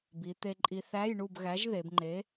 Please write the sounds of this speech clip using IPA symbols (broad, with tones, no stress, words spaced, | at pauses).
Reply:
bi˩˧t̪e˧ǃʼi˧ θæ˧˥˧jɳu˥˨bɣæ˨˥ʒ ðe˩˧bŋ͡ǃe˨˥